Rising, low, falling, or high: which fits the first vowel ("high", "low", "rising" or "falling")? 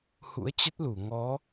rising